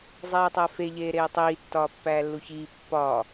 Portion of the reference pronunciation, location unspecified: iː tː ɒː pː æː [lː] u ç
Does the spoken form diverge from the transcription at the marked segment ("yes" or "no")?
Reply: no